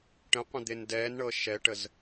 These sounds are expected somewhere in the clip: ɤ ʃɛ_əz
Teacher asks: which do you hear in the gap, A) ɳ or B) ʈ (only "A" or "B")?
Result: B